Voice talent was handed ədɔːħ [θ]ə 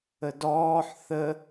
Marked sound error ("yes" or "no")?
no